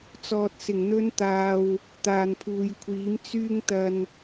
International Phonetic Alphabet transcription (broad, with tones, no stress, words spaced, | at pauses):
t͡sɔː˨t̚sɪ˨˩ŋn̪ɵ˧nt̪aː˨w | t̪aː˨npʰuː˨jkʷʰiː˨˥m t͡syː˧ŋt̪ɐ˨n